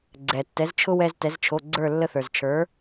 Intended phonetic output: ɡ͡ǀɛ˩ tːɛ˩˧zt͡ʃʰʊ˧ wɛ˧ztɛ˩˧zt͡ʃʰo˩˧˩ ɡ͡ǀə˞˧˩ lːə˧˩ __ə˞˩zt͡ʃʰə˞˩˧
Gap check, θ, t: θ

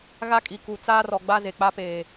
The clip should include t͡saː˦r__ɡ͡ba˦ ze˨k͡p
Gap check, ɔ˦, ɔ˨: ɔ˨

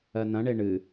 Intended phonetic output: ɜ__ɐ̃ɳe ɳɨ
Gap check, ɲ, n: n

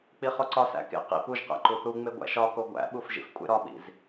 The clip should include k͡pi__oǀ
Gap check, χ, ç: χ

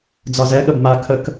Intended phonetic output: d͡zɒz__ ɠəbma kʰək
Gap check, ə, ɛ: ɛ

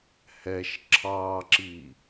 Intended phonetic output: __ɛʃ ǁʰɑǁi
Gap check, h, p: h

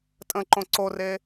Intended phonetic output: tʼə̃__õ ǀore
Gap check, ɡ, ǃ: ǃ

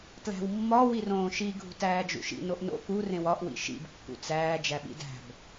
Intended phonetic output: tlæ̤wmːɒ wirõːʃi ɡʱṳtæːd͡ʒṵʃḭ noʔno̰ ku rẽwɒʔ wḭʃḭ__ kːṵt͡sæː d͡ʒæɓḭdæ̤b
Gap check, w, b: b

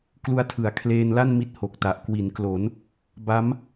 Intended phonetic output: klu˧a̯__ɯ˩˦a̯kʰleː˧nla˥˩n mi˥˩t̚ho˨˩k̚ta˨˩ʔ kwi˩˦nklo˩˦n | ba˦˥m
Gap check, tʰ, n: tʰ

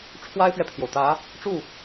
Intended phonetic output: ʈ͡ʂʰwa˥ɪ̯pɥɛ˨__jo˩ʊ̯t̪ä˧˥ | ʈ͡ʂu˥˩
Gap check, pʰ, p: pʰ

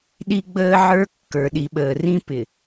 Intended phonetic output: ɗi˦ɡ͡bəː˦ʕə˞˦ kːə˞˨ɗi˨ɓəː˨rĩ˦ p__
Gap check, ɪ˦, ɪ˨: ɪ˨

